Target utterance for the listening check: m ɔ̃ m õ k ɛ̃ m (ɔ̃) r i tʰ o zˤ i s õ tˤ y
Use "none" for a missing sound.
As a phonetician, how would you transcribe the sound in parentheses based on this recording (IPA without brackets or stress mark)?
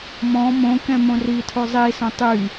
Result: õ